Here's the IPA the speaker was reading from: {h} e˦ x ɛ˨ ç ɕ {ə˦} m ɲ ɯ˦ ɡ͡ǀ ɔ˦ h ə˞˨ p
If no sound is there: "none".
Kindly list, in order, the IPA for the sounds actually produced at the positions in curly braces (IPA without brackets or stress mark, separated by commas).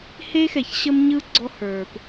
h, ə˦